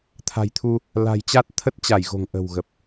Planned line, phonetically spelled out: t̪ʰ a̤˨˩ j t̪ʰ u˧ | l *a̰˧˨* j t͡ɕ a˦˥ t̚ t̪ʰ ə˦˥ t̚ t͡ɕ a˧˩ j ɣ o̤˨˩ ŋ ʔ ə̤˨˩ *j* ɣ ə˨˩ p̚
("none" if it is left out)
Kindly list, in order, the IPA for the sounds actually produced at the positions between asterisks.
a̤˨˩, w

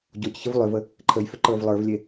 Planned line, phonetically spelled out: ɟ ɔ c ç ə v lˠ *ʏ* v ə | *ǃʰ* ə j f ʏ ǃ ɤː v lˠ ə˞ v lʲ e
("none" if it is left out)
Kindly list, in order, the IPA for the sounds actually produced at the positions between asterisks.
ʏ, ǃʰ

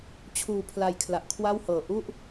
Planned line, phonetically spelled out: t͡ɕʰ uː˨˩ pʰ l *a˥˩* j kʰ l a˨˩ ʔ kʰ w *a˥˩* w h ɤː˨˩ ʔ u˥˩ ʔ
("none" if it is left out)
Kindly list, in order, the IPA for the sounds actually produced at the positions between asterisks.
a˨˩, a˥˩

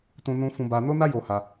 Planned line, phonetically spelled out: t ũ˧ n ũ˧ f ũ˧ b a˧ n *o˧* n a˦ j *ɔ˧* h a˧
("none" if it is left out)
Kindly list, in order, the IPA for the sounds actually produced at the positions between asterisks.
o˦, o˧

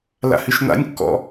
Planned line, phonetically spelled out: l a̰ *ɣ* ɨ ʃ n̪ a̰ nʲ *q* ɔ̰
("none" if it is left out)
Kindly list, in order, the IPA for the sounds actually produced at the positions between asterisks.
h, kː

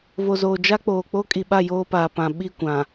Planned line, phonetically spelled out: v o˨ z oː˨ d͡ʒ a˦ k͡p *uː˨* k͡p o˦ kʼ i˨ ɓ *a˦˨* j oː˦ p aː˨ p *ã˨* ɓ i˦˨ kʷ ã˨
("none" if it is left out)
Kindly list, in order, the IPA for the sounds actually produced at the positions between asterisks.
oː˨, a˦˨, ã˨

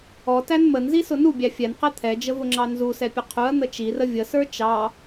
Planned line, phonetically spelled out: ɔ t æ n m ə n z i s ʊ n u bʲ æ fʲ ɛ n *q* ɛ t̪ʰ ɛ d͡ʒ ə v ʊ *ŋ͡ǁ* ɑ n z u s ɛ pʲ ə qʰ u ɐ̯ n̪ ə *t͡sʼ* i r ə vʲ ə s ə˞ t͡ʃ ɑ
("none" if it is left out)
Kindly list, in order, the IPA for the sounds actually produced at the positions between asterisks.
q, ŋ͡ǁ, t͡ʃ

